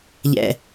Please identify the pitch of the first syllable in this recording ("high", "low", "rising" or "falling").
low